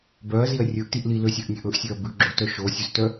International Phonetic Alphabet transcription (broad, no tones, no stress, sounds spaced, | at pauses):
b œ ɐ̯ z i ɐ̯ rʲ ɵ ʔ t i ʔ l i l ø sʲ ø ʔ nʲ ø ʔ ɵ ʔ sʲ ø ɐ̯ b ʉ ɡ͡ǁ o t œ ʃ o sʲ ʉ z t œ